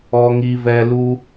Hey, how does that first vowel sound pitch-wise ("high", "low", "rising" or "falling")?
high